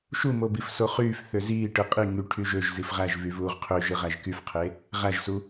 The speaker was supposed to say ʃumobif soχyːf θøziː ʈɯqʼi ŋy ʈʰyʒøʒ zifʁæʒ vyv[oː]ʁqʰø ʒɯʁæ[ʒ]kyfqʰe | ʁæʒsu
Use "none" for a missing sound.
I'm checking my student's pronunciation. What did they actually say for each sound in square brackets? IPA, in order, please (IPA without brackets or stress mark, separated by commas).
uː, ʒ